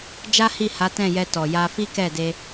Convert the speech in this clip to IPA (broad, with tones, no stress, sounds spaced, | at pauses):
d͡ʒ a˦ h i˦˨ h a˨˦ t ɛ̃˦˨ j ɛ˧ t ɔ˨ j a˧ f i˦ k ɛ˦˨ d e˧